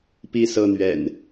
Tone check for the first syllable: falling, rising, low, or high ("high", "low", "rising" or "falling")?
falling